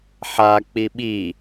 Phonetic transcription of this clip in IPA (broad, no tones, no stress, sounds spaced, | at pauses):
ħ a k͡p i ɓ i